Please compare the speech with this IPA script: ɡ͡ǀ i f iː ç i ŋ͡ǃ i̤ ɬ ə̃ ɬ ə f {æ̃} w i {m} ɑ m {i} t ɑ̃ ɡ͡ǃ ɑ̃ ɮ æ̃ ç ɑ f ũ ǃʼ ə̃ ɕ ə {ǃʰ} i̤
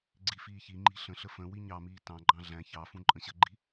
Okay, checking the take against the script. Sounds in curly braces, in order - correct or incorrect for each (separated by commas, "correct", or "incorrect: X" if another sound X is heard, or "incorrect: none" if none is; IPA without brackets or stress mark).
incorrect: ə̃, incorrect: ɲ, incorrect: iː, incorrect: ɡ͡ǃ